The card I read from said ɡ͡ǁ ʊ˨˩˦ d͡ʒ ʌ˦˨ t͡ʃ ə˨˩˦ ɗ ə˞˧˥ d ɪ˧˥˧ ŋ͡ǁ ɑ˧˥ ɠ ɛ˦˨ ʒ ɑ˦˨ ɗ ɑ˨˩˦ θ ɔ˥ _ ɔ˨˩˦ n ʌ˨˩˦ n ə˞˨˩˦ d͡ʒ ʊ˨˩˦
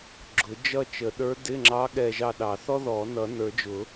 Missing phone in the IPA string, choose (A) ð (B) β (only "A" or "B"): A